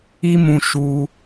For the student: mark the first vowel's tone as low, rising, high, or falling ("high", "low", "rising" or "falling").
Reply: high